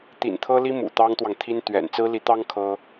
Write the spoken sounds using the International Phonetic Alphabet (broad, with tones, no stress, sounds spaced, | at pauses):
t̪ ḭ˨˩ n t̪ʰ ɤ˥ l i˥ m ṵ˨˩ t̪ ɑ˥ ŋ t̪ w ɑ˨ ŋ t̪ʰ i˥ n t̪ ɥ ɛ̰˨˩ n t͡s ɹ̩˥ l i˧˥ t̪ ɑ˥ ŋ kʰ ɤ˥